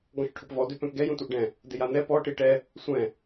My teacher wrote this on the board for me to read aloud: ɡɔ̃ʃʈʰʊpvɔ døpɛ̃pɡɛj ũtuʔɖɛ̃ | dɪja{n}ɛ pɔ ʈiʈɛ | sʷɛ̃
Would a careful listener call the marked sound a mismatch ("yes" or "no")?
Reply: no